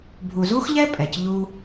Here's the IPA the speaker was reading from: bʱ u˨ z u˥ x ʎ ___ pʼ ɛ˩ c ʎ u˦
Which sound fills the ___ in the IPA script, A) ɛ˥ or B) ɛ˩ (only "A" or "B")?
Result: A